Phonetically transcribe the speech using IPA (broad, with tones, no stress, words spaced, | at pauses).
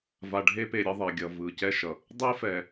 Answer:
va˨ɖʱe˦pe˨ ɾʲʌ˦ðˤe˨ɡʲʌ˨ vɯ˨ cɛ˦ʃʌ˨ | dˤe˦fɛ˨